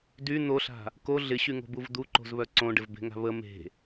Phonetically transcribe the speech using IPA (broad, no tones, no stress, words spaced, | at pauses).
dy n̪oɬa̤ | ko ɮɪɕyŋo̤buv d̪uǃo̤zβœ ǀõɖɪvbe̤ŋa̤ βə me̤